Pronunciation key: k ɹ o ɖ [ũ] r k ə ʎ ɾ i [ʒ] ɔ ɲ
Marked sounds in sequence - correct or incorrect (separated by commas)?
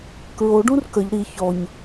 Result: correct, incorrect